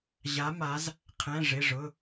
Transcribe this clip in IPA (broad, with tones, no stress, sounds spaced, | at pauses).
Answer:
ʑ a˩˧ m a˩˧ z | qʰ ɛ̃˩˧˩ ʐ ɪ˩˧˩ ʐ ʊ˩˧˩